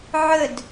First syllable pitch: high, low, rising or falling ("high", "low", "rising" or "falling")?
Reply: falling